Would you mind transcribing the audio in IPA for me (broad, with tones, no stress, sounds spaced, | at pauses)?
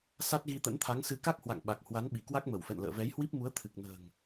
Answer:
s a˦˥ t̚ ɣ i˧ t̪ ə̰˧˥ n t̪ʰ a˨˦ ŋ s ɨ˨˦ k a˦˥ k̚ h w a̰˧˨ ŋ ɓ a˨˩ k̚ h w a˨˦ n ɓ i˧˩ k w a˦˥ k̚ m ə˧˩ w f ɛ̰˧˨ n l ə̰ː˧˨ v ɛ˨˦ j h w i˦˥ p̚ m u˨˦ ə̯ t̪ʰ ɨ˨˩ k̚ n ə̤ː˨˩ ŋ